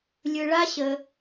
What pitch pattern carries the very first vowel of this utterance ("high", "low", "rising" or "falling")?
low